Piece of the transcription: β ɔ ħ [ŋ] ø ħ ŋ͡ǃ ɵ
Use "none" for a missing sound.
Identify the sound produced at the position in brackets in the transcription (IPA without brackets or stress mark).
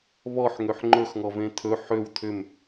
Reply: ŋ